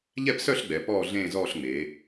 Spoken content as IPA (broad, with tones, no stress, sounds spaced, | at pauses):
ʎ ɛ˥˧ p s œ˥˧ ɬ ɡ͡b ɛ˩˧ p ɔː˥˧ ɮ ẽː˥˧ z ɔː˥˧ ɬ ŋ͡m eː˩˧